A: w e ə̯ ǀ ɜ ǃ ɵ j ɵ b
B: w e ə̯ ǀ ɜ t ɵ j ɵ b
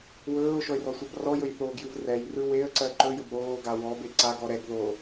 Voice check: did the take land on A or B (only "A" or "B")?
A